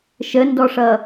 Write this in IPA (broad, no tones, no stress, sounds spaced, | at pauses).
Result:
ʃ ə n d ɔ ʂ ʌ